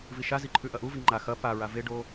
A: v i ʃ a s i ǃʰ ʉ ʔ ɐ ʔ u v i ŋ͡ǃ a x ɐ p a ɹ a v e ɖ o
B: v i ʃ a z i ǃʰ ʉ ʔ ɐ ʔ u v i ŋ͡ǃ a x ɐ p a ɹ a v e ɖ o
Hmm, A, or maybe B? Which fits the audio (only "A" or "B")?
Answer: B